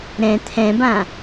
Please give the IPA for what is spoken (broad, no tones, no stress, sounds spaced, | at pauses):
ɾ ɛ̃ t̪ʰ ɛ̃ b ã